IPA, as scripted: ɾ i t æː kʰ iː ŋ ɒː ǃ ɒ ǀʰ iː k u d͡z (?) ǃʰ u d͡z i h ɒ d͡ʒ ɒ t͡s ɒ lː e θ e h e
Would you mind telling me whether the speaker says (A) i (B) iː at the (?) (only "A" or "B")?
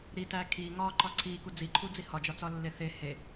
A